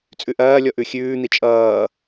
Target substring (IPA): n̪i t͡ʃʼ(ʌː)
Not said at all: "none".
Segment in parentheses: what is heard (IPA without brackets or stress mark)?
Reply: ʌː